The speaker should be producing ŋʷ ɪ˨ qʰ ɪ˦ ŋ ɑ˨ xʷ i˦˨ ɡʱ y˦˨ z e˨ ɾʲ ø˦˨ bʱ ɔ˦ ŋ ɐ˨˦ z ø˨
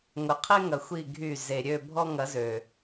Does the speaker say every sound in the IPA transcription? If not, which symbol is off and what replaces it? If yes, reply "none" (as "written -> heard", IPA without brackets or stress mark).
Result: ɑ˨ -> ɐ˨